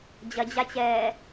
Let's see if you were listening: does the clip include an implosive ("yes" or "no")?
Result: no